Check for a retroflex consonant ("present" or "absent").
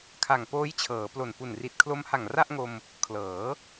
absent